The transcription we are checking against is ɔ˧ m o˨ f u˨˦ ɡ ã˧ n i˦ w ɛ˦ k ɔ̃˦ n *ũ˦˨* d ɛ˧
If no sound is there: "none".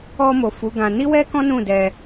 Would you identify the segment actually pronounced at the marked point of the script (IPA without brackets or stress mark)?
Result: ũ˦˨